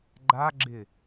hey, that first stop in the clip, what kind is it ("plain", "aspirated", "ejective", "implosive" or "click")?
click